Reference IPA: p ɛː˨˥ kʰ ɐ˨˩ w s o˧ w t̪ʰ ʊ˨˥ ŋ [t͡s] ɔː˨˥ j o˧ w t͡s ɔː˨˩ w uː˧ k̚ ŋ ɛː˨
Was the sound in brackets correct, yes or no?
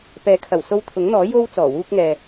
no